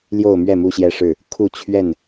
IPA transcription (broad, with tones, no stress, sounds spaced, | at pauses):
l j o˥˨ ʊ̯ m ɥ ɛ˥˨ m u˦ ɕ j ɛ˦ ʂ ɻ̩˥˨ | kʰ u˥˨ t͡ɕʰ ɥ ɛ˥˨ n